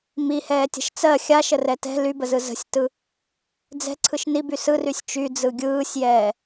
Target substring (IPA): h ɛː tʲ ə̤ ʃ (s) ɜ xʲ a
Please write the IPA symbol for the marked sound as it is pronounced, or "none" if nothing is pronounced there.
t͡s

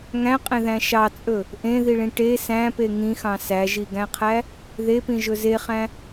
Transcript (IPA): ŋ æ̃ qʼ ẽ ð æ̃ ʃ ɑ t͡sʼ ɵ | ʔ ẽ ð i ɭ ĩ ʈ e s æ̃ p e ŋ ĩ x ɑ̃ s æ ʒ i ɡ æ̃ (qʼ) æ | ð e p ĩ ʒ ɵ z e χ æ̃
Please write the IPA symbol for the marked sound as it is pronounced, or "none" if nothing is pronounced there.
qʰ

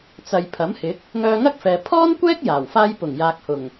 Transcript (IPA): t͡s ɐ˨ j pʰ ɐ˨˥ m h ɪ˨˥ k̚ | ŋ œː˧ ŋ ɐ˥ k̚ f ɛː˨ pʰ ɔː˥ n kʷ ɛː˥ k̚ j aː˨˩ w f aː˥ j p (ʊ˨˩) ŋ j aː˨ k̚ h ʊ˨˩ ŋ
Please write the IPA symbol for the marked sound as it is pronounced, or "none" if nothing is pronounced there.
ʊ˨˩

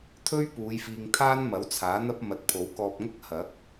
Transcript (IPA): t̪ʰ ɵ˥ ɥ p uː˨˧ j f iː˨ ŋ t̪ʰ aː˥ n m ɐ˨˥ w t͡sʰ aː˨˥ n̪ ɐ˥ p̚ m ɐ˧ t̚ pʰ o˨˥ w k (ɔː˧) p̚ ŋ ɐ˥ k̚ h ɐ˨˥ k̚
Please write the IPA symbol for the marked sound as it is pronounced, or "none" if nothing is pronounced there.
ɔː˧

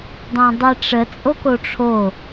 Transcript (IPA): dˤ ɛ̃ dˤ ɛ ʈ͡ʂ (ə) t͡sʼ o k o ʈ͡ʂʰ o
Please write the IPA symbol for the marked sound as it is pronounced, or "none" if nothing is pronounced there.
ə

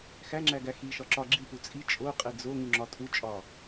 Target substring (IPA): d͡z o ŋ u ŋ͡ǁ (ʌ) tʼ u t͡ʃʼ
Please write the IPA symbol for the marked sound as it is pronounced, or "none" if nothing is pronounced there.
ɒ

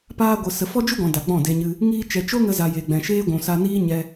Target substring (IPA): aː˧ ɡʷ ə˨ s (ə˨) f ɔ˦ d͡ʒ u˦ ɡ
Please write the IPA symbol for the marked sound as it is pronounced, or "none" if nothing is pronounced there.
ə˨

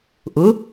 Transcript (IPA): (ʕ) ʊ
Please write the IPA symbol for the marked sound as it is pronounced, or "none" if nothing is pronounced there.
ʔ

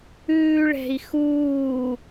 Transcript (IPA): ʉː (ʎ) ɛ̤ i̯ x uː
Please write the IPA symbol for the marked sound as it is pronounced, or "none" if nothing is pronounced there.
ɭ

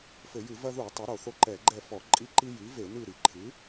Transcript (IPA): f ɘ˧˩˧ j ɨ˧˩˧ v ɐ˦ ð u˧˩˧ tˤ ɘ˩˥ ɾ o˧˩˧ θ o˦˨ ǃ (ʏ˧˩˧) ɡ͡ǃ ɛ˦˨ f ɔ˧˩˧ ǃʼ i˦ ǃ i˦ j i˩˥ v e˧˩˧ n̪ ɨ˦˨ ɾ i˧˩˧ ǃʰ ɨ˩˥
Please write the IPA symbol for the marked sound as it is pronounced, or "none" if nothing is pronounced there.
ɛ˧˩˧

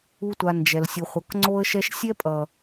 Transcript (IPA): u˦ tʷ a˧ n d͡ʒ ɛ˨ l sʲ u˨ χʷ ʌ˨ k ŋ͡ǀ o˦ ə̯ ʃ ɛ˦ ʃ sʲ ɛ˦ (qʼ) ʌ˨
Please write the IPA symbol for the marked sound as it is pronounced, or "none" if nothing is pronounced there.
pʼ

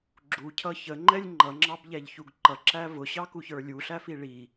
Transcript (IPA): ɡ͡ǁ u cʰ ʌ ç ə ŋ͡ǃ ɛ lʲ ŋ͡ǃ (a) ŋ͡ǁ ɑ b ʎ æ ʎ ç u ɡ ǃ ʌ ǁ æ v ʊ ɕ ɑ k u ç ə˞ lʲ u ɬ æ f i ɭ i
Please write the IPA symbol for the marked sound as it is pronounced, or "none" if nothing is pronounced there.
ʌ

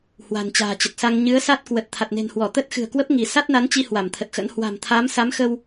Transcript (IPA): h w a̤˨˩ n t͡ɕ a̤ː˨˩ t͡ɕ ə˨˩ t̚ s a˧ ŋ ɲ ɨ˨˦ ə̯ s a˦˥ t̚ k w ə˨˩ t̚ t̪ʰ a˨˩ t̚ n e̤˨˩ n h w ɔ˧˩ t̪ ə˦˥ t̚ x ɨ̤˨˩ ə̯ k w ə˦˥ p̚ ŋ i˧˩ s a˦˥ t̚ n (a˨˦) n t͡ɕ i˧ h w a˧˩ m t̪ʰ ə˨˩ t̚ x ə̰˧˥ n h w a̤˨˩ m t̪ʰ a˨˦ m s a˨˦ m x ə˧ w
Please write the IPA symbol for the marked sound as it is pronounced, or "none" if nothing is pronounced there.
a˨˦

